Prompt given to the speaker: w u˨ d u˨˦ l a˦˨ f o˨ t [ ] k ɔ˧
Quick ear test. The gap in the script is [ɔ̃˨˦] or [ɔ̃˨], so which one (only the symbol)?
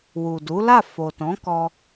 ɔ̃˨˦